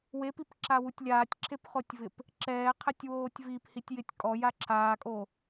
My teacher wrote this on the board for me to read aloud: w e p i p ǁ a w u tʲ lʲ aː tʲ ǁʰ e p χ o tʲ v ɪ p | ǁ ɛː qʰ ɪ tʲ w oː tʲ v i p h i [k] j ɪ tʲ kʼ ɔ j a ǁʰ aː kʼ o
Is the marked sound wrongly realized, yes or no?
yes